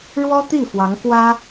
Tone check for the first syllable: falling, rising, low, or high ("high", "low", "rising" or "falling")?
high